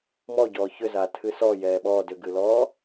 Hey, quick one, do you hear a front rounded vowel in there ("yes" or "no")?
yes